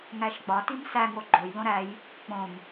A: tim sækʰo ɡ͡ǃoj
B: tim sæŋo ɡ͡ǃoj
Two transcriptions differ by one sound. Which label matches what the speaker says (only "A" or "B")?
B